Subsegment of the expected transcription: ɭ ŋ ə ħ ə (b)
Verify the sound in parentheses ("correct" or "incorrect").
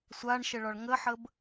correct